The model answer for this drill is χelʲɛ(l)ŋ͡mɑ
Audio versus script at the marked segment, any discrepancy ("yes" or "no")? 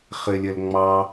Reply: no